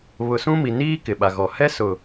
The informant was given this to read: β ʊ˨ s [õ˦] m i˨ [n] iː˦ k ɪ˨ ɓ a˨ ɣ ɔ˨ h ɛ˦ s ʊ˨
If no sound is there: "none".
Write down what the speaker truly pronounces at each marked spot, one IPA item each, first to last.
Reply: ũ˦, n

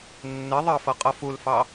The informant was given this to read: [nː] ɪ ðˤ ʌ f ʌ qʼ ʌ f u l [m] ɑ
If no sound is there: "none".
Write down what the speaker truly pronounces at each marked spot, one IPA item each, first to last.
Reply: nː, f

